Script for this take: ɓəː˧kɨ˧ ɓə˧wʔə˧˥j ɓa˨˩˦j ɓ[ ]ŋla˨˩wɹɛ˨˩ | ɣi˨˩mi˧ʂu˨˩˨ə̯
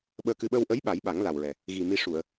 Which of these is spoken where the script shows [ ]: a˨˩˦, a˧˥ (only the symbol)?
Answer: a˨˩˦